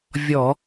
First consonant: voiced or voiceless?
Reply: voiced